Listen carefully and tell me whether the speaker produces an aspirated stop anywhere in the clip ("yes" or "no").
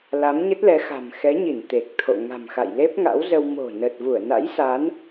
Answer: yes